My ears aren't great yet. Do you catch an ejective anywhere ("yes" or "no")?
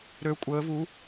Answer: yes